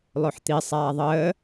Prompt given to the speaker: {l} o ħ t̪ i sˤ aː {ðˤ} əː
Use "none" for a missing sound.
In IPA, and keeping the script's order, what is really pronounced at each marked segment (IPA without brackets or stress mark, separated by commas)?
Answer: lˠ, ðˤ